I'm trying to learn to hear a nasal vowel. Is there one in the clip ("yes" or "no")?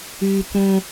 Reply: yes